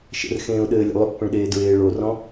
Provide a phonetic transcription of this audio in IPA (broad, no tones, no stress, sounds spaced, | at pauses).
ʃ ə̰ r x ẽː ʊ̯ ɗ ɘː lʲ ə̰ lˠ ʏ pː ə̃ ɭ ɗ eː d ɹ eː ɭ o r ɔ̃